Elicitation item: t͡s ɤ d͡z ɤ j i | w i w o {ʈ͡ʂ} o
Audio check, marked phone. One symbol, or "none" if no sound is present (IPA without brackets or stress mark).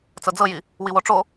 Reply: ʈ͡ʂ